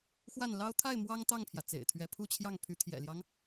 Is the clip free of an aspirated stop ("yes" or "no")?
no